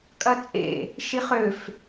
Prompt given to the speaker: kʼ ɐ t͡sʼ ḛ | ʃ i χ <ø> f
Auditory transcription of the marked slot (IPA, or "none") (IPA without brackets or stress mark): ø